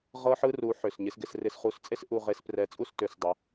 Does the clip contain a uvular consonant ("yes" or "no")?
yes